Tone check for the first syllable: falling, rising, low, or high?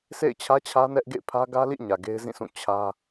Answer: falling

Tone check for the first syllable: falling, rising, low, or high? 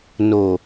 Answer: low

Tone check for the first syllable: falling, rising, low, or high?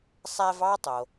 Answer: high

